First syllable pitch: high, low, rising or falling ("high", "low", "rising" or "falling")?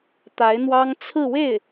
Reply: rising